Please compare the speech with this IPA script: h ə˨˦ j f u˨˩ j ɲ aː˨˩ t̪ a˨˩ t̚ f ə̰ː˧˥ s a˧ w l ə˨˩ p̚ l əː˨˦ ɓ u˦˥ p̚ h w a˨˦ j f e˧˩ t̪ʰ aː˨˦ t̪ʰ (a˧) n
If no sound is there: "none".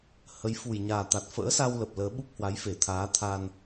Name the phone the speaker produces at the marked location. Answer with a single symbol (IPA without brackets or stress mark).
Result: a˧